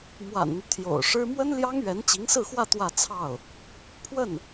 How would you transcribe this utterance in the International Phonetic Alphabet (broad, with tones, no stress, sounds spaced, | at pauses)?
m w a̰˨˩ n n̪ y˦ t̪ʰ j o̰˨˩ ʊ̯ ʂ ɻ̩˥ m w ə˥ n l j ɑ˥ ŋ ɥ ɛ˧˥ n t͡ɕ i˧˥ ŋ s ɹ̩˥˧ x w ä˥˧ t̪ w ä˥˧ t͡sʰ ɑ˥˩ ʊ̯ | pʰ w ə˥˩ n